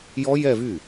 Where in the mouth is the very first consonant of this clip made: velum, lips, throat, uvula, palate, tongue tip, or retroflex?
palate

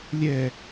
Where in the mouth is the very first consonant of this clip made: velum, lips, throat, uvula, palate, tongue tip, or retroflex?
tongue tip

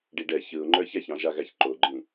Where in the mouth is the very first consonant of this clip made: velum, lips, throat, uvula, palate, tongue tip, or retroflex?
retroflex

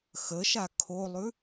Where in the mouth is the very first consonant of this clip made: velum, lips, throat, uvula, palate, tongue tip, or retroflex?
velum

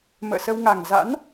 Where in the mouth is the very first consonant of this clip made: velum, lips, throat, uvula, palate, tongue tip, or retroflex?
lips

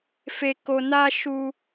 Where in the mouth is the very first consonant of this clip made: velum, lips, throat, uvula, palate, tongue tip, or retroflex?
lips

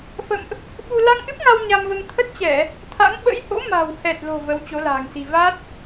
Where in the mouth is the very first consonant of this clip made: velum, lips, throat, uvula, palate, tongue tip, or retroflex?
lips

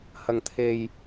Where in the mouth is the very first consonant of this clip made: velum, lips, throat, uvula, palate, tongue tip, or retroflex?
throat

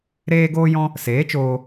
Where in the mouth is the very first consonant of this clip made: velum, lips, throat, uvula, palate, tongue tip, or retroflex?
tongue tip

